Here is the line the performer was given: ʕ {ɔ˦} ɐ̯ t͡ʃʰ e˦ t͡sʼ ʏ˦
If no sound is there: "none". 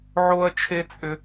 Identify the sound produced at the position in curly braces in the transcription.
o˦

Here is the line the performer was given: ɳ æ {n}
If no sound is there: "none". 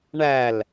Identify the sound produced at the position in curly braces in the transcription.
l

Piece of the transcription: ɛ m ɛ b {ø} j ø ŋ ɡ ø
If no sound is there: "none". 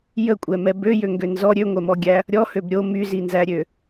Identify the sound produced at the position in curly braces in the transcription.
ø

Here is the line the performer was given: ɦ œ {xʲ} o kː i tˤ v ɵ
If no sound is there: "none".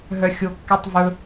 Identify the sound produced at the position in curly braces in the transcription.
xʲ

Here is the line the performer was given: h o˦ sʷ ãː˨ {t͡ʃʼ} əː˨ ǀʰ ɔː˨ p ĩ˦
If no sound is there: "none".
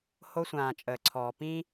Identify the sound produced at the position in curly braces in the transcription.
t͡ʃʼ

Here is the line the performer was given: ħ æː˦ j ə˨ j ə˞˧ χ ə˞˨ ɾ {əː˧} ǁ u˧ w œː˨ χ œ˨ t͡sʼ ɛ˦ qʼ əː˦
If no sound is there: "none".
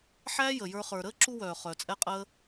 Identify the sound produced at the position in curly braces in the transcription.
əː˦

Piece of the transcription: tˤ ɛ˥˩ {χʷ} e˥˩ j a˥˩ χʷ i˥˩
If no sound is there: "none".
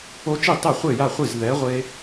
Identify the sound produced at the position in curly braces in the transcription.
χʷ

